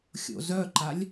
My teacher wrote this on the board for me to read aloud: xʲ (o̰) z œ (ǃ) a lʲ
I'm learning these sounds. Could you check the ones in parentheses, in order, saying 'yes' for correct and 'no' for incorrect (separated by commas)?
yes, yes